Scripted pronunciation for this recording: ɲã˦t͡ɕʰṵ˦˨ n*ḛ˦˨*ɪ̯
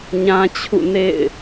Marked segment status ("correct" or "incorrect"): correct